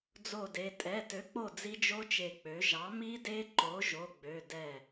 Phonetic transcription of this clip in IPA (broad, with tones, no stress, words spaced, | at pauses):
d͡zo˧˩de˩˧˩ tʼɛ˩˧˩tø˩˥k͡po˧˩ d͡zi˦˥d͡ʒo˦˥t͡ʃe˧˩k͡pø˩˥ ʒɑ˩˥mi˦˥de˦˥ ǃo˩˥ʒo˩˧˩ɡ͡bø˩˧˩ dɛ˧˩